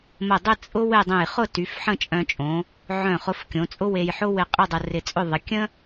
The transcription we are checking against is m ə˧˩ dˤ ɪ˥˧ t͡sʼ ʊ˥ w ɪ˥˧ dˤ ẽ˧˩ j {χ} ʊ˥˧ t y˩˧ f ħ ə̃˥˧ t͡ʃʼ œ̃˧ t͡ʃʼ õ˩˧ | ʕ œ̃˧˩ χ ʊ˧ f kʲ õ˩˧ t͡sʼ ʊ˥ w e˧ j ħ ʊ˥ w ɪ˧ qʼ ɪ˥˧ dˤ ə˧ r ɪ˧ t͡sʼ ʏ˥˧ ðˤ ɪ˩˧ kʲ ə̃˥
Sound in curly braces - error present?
no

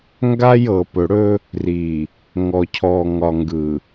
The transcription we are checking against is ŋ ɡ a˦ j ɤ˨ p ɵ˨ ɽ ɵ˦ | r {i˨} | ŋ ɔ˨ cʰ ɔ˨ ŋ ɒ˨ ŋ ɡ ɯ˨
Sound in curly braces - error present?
no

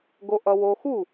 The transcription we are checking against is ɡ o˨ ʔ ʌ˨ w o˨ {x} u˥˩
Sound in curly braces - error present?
no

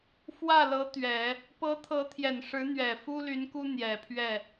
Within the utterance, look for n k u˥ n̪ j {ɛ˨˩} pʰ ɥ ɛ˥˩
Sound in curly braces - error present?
no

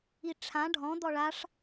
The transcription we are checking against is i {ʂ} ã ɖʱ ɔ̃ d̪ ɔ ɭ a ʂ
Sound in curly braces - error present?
yes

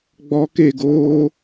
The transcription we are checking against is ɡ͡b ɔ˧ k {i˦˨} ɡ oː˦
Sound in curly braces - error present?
yes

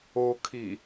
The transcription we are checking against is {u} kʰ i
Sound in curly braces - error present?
yes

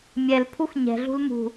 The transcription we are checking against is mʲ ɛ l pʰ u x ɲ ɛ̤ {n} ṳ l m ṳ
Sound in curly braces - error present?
yes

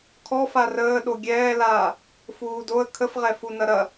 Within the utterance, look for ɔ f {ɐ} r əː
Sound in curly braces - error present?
yes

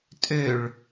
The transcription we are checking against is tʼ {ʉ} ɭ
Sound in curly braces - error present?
yes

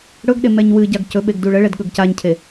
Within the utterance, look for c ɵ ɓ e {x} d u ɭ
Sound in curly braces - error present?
yes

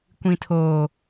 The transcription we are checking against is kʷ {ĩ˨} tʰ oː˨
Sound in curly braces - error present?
no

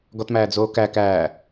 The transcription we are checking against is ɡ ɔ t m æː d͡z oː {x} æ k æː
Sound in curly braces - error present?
yes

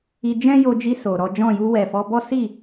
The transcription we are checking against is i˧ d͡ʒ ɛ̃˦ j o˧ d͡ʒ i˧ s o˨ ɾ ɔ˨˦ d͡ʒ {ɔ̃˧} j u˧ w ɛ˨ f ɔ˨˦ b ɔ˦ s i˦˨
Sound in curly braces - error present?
yes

